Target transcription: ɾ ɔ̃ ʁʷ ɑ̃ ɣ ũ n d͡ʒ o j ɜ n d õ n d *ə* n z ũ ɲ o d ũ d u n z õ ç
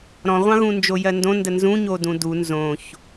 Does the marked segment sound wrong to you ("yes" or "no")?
no